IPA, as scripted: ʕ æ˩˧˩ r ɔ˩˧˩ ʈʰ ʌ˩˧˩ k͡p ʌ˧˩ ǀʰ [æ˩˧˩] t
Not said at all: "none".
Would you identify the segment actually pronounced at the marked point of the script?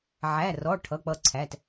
æ˩˧˩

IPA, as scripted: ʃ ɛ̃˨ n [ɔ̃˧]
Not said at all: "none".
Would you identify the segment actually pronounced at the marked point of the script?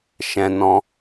ɔ̃˧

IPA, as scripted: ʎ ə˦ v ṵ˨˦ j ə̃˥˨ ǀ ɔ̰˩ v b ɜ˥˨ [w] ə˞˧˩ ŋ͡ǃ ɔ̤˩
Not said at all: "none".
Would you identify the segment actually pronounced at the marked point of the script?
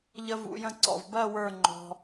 w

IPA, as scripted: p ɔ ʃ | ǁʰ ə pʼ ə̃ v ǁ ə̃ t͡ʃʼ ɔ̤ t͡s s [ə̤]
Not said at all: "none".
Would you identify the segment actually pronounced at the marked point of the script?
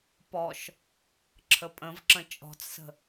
ə̤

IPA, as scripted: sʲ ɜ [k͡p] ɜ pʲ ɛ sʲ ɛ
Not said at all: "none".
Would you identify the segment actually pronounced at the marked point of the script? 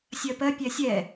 p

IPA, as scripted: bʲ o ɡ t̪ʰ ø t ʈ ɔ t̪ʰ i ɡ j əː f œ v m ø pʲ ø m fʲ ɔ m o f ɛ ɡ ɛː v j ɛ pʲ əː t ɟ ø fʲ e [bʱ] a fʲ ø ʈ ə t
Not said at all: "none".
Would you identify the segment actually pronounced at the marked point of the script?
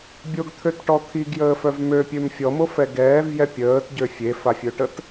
f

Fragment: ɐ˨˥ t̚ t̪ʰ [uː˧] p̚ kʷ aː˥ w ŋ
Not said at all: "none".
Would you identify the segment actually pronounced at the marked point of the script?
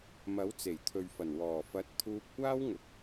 uː˧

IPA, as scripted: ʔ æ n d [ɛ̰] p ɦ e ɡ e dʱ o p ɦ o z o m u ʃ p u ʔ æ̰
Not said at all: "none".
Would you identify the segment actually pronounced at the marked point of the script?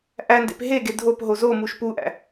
ḛ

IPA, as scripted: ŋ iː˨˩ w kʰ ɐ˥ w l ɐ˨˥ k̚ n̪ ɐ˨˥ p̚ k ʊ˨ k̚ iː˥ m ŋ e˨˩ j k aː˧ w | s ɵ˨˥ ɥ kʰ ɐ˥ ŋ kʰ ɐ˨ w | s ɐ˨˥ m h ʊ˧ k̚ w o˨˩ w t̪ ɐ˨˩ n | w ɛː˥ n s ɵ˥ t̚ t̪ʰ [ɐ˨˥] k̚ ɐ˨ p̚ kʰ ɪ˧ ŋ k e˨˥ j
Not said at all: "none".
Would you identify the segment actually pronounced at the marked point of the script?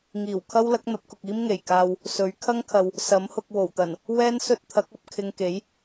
ɐ˨˥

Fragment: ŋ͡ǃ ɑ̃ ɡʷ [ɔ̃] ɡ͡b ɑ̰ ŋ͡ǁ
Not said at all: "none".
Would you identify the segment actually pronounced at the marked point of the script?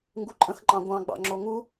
ɑ̃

